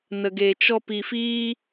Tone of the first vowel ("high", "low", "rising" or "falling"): low